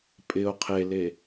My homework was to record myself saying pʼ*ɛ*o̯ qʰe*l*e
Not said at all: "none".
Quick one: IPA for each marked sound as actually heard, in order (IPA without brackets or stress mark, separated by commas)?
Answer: ɪ, l